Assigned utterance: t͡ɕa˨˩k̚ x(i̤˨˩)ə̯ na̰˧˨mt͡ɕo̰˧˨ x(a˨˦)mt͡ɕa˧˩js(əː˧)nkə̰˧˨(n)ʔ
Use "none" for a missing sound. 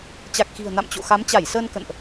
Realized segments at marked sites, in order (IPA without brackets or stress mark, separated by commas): i̤˨˩, a˨˦, əː˧, n